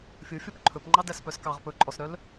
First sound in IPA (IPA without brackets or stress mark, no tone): fʲ